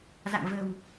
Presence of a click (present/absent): absent